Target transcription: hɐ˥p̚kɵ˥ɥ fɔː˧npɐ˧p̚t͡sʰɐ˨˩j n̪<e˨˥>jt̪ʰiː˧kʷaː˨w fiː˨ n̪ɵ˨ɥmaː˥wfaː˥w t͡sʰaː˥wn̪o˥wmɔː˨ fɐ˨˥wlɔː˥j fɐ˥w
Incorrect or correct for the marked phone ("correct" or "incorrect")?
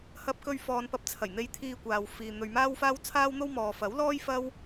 incorrect